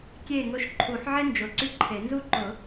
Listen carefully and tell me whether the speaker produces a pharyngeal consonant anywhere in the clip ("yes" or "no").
yes